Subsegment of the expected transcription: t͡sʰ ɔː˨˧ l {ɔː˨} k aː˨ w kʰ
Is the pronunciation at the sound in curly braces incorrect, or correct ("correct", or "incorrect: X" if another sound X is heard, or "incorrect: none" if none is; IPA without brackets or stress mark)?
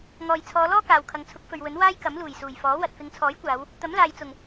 incorrect: ɔː˥